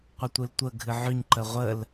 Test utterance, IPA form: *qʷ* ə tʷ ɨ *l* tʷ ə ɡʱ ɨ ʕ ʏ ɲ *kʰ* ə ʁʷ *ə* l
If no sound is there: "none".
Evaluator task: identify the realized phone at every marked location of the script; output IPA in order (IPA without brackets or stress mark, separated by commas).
qʷ, l, ǃ, ə